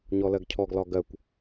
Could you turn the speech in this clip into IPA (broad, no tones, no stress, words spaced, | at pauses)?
ɲɔlɜɡcʰɔɡ lɒɡɜkʷ